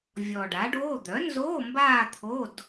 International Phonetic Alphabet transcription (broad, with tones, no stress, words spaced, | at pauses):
vʲɔ˨˩ɖa˩˥ɖoː˧˥˧ d̪œ˩˥nzoː˧˥˧ mbaː˥˧t̪ʰo˧˥˧d